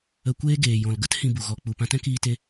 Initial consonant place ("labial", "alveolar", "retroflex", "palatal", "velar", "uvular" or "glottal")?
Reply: velar